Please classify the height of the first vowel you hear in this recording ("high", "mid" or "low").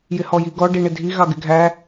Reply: high